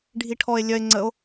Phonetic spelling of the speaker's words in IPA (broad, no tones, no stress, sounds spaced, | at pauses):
ɖʱ i ʈʰ ɔ e̯ lʲ œ e̯ ŋ͡ǀ ə o̯